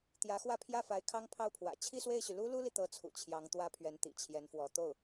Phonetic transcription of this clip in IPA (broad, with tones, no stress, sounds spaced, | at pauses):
t̪ j ä˧˥ x w ä˥˧ pʰ j ä˥˩ f a˧˥ ɪ̯ kʰ ɑ˥ ŋ pʰ ɑ˥˩ ʊ̯ pʰ w ä̰˨˩ t͡ɕʰ i˥˧ s w e˥˩ ɪ̯ ɕ y˩ l u˥ l u˥ l i˨ t̪ ɤ˧˥ t͡sʰ ṵ˨˩ t͡ɕʰ j ɑ˧˥ ŋ t̪ w ä˥ pʰ ɥ ɛ˧˥ n t̪ ḭ˨˩ t͡ɕʰ j ɛ˧˥ n f w ɔ˧˥ t̪ o˥˩ ʊ̯